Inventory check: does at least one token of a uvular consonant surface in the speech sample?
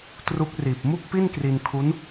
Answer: no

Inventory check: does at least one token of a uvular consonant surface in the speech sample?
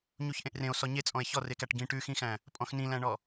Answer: no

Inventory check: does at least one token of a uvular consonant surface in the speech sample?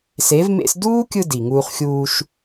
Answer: yes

